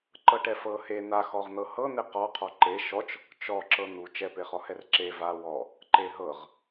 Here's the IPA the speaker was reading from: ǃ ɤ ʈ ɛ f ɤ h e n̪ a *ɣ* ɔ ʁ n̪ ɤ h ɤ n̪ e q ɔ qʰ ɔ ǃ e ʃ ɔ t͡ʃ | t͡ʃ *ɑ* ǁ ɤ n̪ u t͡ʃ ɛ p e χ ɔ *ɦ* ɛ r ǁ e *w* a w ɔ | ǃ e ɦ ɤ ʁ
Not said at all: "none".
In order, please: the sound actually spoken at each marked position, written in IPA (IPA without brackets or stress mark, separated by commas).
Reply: x, ɔ, h, v